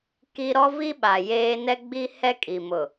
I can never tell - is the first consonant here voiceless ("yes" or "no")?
yes